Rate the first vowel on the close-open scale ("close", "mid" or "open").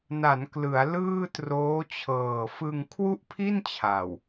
open